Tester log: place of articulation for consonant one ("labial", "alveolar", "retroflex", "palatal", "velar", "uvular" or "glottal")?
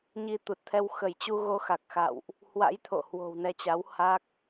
palatal